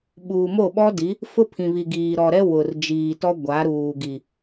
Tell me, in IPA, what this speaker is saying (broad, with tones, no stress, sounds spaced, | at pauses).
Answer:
ɓ uː˨ m o˦˨ ɓ ɔ˦ d i˨˦ | f ʊ˦ pʰ ĩ˨ β i˨ ɡ iː˨ ɾ ɔ˨ ɾ ɛ˦ w ʊ˨ r d͡ʒ iː˨ t ɔ˦ ɡʷ a˨˦ ɾ uː˨ ɡ i˨